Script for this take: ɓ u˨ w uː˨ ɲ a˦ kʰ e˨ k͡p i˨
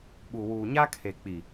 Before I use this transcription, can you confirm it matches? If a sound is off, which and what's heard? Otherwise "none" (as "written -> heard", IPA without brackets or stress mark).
none